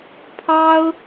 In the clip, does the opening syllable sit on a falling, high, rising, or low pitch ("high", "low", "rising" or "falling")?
high